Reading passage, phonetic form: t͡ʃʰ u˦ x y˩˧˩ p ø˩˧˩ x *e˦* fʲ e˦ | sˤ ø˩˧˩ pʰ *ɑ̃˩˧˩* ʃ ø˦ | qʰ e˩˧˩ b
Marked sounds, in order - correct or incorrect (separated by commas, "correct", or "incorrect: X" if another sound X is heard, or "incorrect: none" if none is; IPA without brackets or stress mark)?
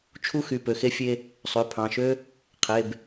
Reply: correct, correct